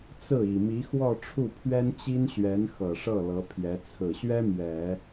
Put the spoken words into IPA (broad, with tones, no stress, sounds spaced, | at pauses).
t͡s ɹ̩˥˩ i˨˩ m i˧˥ x w ɔ˥˧ ʈ͡ʂʰ u˥˩ pʰ ɥ ɛ˥ n t͡ɕ i˥ n ɕ ɥ ɛ˧˥ n x ɤ˨˩ ʂ ɤ˥˩ l ɤ˧˥ pʰ j ɛ˧˥ t͡sʰ ɹ̩˨˩ ɕ ɥ ɛ˥ m ɥ ɛ˨˩˦